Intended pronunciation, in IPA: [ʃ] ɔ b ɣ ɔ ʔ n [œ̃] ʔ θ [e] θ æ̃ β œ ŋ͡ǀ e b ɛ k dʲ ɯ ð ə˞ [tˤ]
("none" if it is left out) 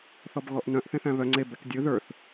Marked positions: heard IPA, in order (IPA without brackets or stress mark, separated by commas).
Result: θ, œ̃, ẽ, θ